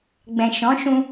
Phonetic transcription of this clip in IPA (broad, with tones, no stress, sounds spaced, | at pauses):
ɡ͡b ɛ̃˨ ʃ ɔ̃˨˦ ʃ ũ˧